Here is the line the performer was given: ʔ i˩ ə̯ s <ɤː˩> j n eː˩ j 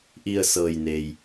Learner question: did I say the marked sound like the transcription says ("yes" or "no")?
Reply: yes